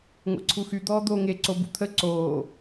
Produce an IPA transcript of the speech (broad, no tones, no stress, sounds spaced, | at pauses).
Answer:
ŋʷ ɛ̰ ǀʰ u x y d̪ ɔː d̪ oː ŋ e ǀ o b ṵ t̪ʰ ə ǀ oː